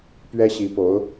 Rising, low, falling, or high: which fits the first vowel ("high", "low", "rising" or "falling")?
high